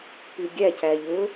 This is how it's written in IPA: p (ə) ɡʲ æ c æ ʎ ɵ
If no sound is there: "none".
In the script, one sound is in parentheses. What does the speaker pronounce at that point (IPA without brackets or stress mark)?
ʉ